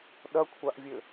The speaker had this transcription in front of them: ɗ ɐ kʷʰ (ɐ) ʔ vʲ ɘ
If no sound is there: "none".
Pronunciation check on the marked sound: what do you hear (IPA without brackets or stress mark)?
a